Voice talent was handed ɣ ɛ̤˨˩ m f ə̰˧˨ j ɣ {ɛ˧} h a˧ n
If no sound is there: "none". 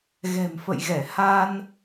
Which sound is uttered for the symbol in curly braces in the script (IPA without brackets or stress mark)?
ɛ˧˩